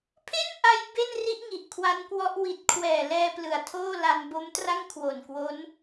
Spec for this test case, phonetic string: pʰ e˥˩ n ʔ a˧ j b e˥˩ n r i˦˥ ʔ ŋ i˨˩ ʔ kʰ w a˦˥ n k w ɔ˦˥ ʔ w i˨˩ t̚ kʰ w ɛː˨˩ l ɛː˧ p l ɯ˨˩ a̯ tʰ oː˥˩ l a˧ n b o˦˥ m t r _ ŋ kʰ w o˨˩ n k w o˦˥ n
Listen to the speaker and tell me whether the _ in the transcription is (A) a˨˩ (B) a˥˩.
B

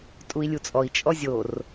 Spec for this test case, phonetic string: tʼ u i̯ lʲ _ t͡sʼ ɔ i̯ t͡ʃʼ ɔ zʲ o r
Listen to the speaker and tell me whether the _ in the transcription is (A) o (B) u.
B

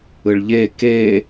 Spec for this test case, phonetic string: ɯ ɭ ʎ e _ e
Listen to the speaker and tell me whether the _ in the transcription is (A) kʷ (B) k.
B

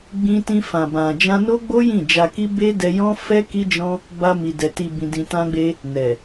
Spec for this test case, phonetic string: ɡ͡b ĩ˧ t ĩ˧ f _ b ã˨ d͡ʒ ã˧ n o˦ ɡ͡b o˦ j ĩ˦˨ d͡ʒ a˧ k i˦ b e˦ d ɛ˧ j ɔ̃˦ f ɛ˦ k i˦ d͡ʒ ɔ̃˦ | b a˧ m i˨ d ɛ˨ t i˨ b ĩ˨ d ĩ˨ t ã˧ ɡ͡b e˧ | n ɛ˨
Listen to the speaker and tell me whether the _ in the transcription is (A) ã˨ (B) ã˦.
A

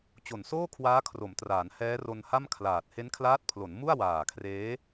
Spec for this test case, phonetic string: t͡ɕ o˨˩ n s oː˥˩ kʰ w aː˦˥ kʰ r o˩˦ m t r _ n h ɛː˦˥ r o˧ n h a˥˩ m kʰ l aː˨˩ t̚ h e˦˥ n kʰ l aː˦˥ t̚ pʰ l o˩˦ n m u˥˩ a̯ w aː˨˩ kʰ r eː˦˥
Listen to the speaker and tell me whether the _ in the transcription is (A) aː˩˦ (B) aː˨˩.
A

